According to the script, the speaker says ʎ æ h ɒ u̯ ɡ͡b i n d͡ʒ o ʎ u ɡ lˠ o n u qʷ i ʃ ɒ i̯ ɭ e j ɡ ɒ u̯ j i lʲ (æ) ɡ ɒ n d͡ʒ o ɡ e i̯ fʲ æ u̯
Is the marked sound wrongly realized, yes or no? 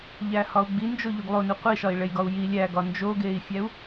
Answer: no